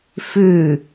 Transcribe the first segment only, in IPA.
f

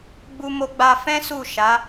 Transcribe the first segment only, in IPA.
ɡ͡b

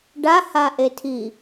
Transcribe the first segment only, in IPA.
ɖ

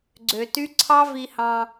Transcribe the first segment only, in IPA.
ɡ͡ǀ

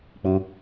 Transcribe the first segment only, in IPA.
k͡p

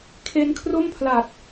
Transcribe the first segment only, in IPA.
kʰ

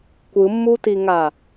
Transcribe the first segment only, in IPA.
kʷ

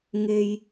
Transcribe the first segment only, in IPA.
ŋ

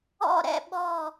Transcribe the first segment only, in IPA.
ɔ̰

